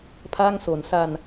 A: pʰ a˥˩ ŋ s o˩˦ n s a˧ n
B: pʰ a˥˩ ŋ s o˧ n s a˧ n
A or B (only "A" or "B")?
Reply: A